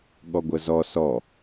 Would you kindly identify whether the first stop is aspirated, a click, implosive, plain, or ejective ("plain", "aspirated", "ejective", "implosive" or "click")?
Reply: implosive